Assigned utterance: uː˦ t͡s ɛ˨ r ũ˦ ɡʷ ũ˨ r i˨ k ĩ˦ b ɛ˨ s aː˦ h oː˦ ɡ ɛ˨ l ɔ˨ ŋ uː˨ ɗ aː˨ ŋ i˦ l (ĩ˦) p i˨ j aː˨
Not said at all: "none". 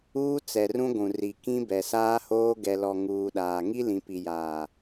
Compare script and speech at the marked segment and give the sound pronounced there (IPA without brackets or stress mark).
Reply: ĩ˨